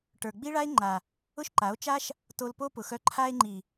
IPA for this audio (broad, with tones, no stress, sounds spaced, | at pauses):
ʈ ə˞˨ ɡ͡b i˦ ɭ a˦ e̯ ŋ͡ǃ a˨ | ʊ˦ ʃ ǃ a˨˦ o̯ t͡ʃ a˦ ʃ | t o˧ l p o˦ p ʊ˨ x œ˧ ǃʰ a˧ e̯ ŋ͡ǃ i˨